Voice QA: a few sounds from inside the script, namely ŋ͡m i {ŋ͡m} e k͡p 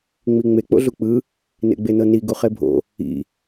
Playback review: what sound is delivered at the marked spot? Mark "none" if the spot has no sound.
ŋ͡m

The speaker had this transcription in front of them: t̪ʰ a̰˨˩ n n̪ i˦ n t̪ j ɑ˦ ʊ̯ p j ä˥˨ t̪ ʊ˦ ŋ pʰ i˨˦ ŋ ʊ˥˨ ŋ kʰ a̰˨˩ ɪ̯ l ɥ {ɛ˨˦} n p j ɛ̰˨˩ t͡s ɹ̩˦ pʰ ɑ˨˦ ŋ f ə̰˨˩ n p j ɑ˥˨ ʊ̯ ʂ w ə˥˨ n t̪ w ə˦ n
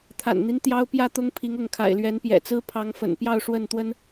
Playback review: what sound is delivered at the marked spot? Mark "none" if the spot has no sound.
ɛ˨˦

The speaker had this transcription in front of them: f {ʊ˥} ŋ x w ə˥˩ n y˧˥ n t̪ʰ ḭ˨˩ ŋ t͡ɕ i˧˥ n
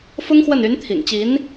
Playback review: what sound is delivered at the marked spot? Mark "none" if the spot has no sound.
ʊ˥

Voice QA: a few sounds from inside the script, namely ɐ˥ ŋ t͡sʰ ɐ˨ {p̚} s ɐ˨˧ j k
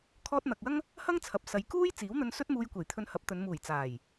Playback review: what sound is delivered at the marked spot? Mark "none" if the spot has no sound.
p̚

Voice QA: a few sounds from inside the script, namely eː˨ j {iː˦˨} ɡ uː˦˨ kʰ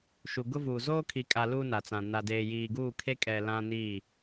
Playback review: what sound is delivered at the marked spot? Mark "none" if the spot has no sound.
iː˨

